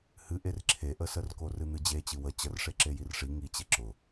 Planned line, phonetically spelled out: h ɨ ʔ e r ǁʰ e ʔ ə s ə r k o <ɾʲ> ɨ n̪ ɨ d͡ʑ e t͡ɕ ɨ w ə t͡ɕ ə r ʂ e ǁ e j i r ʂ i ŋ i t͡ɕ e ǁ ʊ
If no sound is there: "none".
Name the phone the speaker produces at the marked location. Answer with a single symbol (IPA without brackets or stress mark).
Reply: r